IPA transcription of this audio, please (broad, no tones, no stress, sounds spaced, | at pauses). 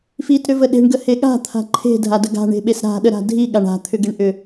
f i t ɾ ʏ v ə ɗ e̤ ɳ ɡ ə h e ɠ a̤ t̪ʰ a̤ ǃʰ e̤ dʱ a d ə ɡ a̤ ɳ e̤ ɓ e s ɾ a̤ ɗ ə ɾ a̤ dʱ i ɠ a ɳ a̤ t̪ʰ ʏ ɡ e ɳ ʔ ʏ